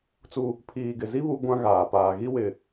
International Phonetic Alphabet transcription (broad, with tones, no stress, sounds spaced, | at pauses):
t͡s u˦ | pʰ iː˨ ɡ ɪ˨ z i˦ β u˦ ɡʷ ã˦ ɣ aː˨ p aː˨ ɣ i˦ w ɪ˨